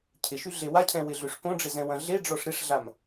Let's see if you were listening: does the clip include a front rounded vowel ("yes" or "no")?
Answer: yes